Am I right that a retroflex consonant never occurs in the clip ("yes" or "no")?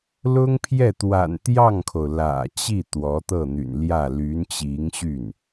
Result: yes